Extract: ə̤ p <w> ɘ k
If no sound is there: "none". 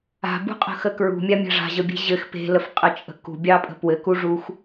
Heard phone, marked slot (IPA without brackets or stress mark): w